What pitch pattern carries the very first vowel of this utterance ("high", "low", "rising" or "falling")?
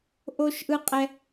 high